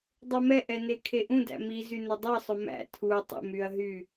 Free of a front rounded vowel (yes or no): no